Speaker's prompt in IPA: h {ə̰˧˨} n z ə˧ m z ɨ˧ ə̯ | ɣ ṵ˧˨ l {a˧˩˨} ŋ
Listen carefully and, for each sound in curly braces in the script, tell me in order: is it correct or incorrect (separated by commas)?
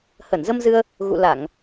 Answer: incorrect, correct